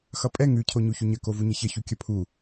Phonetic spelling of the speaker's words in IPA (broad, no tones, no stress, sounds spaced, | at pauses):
x ʌ pʼ ɛ ŋ ʉ cʰ o ɲ u ç u ɲ ə k o v u ɲ ə ç ə ç u kʲ ʌ pʰ u